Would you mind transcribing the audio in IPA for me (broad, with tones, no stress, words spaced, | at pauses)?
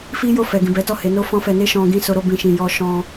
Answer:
fi˦ jo˦˨fɛ˨ɡĩ˨bɛ˨˦ tɔ˦˨he˨˦no˦ fɔ̃˦fɛ˧ ne˦ ʃɔ̃˧ ɡĩ˧ so˧ɾo˧ bĩ˨ ʃĩ˨jɔ˧ ʃɔ̃˦